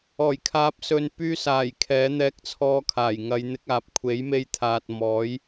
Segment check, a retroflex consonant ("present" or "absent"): absent